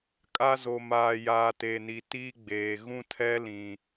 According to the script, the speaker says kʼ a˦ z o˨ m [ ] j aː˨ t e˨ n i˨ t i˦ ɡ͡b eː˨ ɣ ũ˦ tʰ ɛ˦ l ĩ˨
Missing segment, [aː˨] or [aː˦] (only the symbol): aː˨